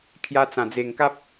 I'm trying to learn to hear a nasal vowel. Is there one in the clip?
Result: yes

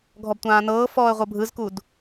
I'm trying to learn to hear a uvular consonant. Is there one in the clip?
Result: yes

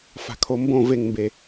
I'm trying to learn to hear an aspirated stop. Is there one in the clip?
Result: yes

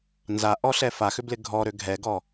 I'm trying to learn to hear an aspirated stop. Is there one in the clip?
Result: no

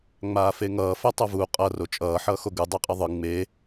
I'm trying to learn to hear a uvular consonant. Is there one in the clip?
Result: yes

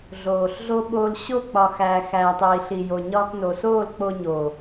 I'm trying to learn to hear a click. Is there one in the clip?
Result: no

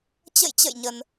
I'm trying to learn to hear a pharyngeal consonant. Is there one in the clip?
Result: no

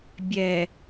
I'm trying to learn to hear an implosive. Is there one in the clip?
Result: no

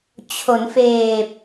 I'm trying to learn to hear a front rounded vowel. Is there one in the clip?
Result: no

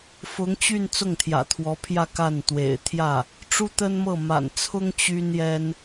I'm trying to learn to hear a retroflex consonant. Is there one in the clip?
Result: yes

